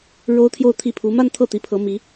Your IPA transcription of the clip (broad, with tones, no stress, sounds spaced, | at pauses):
ɻ o˥ ʊ̯ t̪ʰ j o˥˧ ʊ̯ t̪ʰ i˥˩ pʰ u˧˥ m a˥˧ n t̪ʰ ɤ˥˩ t̪ i˧˥ pʰ ɤ˧˥ m i˧˥